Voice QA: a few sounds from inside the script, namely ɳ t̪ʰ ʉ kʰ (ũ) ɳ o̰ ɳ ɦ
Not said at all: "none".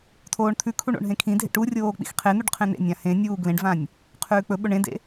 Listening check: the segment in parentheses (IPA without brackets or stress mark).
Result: u